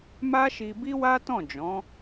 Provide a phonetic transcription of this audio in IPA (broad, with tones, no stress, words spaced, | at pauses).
ma˦ʃi˧bi˦wa˦ tɔ̃˦˨d͡ʒɔ̃˨˦